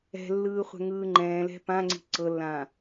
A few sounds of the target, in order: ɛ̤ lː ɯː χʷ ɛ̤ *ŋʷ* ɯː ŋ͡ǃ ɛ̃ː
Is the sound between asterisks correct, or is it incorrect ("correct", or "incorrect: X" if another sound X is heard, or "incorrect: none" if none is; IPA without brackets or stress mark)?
incorrect: ŋ